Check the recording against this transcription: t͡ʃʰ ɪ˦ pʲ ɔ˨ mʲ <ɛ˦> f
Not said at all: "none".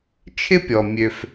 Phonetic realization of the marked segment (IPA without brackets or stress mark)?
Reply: ø˦